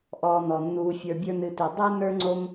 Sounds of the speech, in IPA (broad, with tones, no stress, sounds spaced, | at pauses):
ʔ ɔː˨ n ɔ˩ nː uː˨ fʲ ə˞˨ bʲ ə˞˦ n ɨ˨ t e˨ dˤ e˥ n ə˞˥ ŋ͡ǀ o˦ m